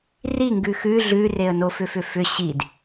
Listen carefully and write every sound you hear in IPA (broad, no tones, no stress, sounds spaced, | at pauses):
r i ŋ ɡ ʉ x ʉ ɮ ʉ r e ə̯ n o f ʏ f ʏ f ʏ ɕ i d